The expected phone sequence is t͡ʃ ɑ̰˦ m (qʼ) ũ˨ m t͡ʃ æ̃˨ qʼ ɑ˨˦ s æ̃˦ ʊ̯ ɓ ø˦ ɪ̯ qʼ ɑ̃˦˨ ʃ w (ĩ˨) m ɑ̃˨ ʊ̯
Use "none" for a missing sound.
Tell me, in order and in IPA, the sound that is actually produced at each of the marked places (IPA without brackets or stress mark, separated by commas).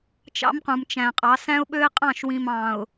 q, ĩ˨